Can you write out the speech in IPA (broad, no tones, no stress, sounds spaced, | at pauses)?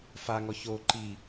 f a ŋ ɔ ç o ǃ i